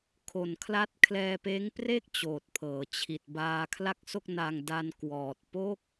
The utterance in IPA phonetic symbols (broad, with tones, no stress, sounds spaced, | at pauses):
kʰ o˨˩ n kʰ l a˦˥ t̚ kʰ l ɛː˧ p eː˦˥ ŋ p r e˥˩ k̚ t͡ɕ oː˨˩ t̚ pʰ ɤː˩˦ t͡ɕʰ i˨˩ t̚ b aː˧ kʰ l a˥˩ k̚ s o˥˩ k̚ n a˧ ŋ d a˧ n k w ɔː˨˩ t̚ p o˥˩ k̚